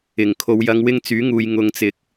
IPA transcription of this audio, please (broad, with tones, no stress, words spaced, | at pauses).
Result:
ɪ˨˩ŋkʰo˨w jɐ˨˧ŋwɪ˧ŋ t͡syː˨˥ŋuː˨jŋʊ˨˧ŋ t͡sɪ˨˥k̚